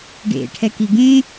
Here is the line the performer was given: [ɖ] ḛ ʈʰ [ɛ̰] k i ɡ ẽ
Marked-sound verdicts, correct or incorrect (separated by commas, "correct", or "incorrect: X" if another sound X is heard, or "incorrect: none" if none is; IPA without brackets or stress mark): correct, incorrect: ɛ